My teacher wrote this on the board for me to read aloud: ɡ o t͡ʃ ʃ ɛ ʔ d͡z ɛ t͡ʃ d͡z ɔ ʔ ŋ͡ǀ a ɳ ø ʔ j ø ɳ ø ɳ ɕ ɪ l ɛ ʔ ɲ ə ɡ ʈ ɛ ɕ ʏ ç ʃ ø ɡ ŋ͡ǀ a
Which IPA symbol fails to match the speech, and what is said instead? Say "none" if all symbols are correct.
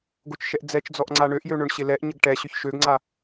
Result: none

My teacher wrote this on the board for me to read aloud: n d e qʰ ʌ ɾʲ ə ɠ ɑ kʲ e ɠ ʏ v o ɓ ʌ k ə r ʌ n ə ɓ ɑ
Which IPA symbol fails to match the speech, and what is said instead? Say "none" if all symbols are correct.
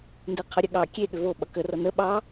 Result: none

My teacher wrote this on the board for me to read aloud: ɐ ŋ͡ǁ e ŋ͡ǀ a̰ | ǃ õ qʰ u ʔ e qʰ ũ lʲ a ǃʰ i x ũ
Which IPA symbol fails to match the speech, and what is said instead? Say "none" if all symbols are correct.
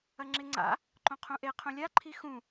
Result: u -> ũ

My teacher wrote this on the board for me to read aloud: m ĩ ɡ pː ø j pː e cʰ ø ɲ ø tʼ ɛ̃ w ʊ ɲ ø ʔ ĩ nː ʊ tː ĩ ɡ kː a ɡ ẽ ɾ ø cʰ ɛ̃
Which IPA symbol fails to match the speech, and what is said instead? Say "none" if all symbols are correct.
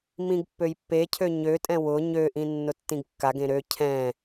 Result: none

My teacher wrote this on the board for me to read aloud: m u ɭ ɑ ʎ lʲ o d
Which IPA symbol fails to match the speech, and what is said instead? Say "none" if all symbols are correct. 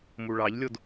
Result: none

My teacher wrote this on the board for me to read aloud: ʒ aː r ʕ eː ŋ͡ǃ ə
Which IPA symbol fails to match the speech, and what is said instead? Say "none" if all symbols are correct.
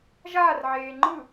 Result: ə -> ɯ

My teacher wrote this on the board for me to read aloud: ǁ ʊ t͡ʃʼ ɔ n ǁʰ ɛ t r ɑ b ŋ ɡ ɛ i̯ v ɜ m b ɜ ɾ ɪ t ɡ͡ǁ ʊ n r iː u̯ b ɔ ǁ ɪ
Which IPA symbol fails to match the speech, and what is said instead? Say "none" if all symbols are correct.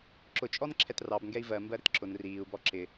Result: ɡ͡ǁ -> ǁ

